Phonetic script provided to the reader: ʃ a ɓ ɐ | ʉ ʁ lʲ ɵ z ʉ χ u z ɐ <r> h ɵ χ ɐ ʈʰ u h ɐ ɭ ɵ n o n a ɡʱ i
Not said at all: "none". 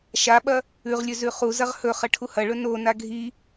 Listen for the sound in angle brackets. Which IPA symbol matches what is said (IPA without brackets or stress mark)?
ʁ